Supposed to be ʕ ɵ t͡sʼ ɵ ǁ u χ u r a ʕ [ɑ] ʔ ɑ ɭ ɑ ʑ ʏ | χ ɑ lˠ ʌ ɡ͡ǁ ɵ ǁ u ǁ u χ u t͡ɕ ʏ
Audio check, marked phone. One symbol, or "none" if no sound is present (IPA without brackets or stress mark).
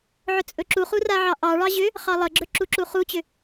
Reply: ɑ